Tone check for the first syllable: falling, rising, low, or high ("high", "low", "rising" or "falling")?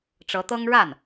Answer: rising